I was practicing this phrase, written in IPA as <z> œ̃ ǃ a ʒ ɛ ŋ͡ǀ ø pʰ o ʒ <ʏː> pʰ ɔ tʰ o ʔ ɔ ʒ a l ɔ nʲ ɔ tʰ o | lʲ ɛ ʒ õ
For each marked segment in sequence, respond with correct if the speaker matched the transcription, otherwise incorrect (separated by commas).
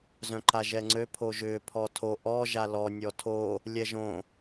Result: correct, correct